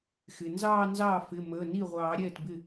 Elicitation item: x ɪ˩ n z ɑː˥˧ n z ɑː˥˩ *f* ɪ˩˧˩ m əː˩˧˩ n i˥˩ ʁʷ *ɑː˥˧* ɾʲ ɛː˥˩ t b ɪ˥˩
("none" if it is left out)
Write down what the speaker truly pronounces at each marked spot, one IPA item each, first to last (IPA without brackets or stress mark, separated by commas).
f, ɑː˨˩˦